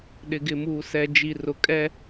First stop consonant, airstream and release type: implosive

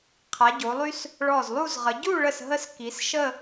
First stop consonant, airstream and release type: aspirated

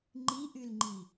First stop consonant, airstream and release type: click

